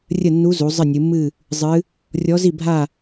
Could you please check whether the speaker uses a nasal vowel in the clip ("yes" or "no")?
no